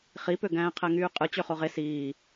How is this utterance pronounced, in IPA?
χipø ɡæ̃ːqʰæŋyːqʼɯ t͡ɕøχoʁe siː

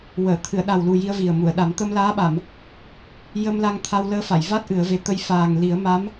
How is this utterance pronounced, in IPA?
wəː˨˩˨t̪ʰɨ˨˩˨ə̯ɗa˨˩wlu˨˩ ji˧ə̯vi˨˩ə̯mu˨˩˨ə̯ɗa˨˩˦m t̪ə˧mlaː˧˥ɓa˨˩˨m | jə˧mla˧ŋt̪ʰa˧w ləː˧˥fa˨˩˨jva˦˥t̚ ʔɨ˨˩˦ə̯ve˧ t̪ə˧j faː˨˩ŋ li˨˩˦ə̯ma˧˥m

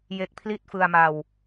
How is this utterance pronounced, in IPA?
je˦˥k̚pʰli˥˩t̚fɯ˧a̯ma˧w

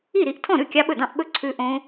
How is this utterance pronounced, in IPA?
i˥˩ɾi˥˩ʔ tʰɔ̃˥˩ɾʉ˥˩ kʲɑ˦˥ɓɵ˥˩dɑ̃˥˩ʔ ɓɵ˥˩ ǀʰʉ˦˥ ʔõ˦˥

